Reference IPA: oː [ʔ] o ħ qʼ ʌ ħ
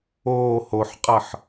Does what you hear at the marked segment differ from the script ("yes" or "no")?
yes